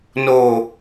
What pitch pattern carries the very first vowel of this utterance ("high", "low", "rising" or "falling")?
low